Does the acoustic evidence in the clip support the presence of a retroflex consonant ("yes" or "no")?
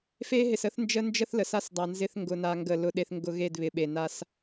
no